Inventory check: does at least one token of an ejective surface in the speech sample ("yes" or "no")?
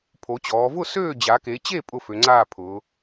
yes